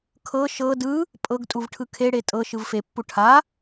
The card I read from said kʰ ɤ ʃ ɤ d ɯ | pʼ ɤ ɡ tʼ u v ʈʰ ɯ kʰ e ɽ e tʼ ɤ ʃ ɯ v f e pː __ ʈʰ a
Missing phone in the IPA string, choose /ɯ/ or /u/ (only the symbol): u